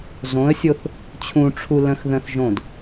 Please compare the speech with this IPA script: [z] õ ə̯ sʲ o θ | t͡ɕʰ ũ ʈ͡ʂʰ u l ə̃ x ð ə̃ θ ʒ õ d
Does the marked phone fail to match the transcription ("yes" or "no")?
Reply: no